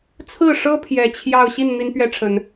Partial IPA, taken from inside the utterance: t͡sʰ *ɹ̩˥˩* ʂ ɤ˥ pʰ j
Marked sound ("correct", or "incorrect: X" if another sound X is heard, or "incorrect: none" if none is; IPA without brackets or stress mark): correct